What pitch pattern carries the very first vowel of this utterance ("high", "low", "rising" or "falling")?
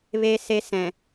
high